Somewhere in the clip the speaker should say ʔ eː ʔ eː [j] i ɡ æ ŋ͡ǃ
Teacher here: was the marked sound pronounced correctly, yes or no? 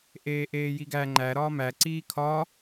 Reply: yes